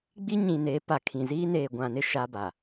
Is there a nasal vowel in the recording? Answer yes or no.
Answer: yes